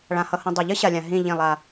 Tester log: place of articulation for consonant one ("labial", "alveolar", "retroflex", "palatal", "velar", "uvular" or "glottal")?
retroflex